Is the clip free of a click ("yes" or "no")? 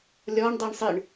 yes